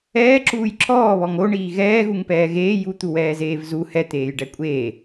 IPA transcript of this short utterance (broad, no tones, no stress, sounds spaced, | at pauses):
ɛː ǁ uː j ǁ ɔː β ɔ ŋ o ɳ iː ɣ ɛː ɣ u ŋ p ɛː ɣ eː j u t̪ u w ɛː z eː v z u h ɛ t̪ eː j ɖ ɛ kʷʼ eː